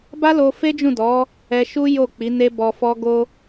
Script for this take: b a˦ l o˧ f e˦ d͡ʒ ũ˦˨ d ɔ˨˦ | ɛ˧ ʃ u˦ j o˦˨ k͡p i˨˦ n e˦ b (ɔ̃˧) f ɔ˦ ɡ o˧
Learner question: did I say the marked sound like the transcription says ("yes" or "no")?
no